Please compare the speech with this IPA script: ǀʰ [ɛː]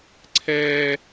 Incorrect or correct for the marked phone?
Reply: correct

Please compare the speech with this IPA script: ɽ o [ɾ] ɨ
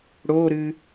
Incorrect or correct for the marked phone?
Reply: correct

